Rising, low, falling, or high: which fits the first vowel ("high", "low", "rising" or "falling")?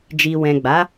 low